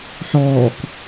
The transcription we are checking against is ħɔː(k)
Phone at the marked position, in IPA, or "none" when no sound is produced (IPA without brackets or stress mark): k